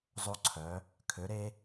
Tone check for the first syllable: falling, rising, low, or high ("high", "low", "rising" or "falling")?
high